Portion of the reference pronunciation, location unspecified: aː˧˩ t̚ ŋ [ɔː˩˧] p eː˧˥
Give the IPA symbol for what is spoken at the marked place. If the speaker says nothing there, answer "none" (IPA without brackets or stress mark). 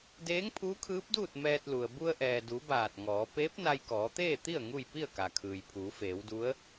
ɔː˩˧